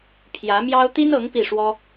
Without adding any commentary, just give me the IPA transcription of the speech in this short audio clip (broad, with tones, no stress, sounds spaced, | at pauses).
pʰ j ä˧˥ m j ɑ˥ ʊ̯ t̪ i˥ n ɤ˧˥ ŋ p i˥˩ ʂ w ɔ˥